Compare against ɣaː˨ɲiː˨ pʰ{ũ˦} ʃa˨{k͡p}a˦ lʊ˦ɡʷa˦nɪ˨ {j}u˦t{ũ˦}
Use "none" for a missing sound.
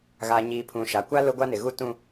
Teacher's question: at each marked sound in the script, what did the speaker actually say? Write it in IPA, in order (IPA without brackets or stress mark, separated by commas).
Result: ũ˨, kʷ, ɣ, ũ˦